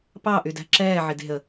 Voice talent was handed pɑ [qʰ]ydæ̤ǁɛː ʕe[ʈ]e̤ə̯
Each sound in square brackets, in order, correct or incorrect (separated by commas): incorrect, incorrect